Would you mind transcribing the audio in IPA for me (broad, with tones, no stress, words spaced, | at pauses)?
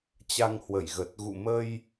t͡ɕa˧ŋ hwə˧˩jɣə˨˩t̚ ɣṵ˧˨mə˧j